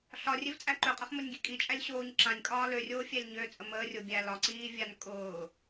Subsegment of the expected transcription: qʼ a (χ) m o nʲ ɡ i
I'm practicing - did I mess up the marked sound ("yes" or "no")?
no